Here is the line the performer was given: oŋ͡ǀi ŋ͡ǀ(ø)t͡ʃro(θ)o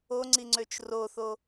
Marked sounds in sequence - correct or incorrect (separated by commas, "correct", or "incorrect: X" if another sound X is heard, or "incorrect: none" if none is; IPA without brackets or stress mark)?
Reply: correct, correct